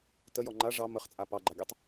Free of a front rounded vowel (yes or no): yes